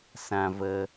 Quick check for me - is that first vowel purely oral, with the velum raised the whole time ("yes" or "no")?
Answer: no